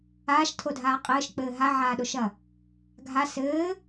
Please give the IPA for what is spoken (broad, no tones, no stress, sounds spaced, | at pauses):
aː ʃ tʰ o dʱ aː qʼ ɘː ʃ k͡p ɘː ɦ a ʕ aː ɗ o ʃ ɐ | ɡʱ a s ɘː